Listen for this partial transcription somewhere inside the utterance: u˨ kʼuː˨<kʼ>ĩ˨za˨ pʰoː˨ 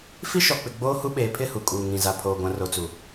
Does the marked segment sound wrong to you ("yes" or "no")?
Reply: yes